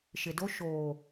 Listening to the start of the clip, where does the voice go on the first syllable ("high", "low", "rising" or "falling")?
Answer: low